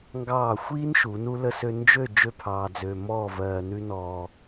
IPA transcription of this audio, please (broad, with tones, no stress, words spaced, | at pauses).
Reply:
ŋɡɑː˧˩xʷiː˥n ʃu˩˧nu˥lə˥sø˥ nd͡ʒø˥˧ d͡ʒø˥˧pʰɑː˧d͡zø˧mɔː˥˧ vɜː˧nʉ˥nɔː˧